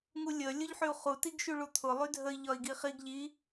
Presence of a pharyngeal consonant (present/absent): present